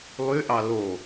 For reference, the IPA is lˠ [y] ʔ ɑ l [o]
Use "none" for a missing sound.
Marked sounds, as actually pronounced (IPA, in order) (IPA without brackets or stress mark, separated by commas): y, o